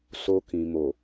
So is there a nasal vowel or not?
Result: yes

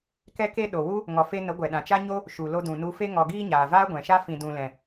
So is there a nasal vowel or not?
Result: yes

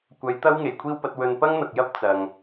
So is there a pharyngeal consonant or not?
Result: no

